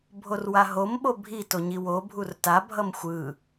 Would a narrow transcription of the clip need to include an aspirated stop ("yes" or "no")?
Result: no